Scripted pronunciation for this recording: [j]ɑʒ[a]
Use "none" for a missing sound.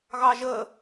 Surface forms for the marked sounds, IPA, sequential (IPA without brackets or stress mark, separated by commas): ɣ, ə